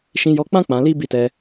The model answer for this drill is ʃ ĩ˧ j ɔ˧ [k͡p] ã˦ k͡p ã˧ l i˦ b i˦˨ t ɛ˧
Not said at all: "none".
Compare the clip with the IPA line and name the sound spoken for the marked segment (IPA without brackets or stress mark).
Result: k͡p